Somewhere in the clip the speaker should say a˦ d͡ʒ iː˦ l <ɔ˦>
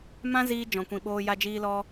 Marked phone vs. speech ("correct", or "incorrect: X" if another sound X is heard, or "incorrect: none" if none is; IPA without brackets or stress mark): correct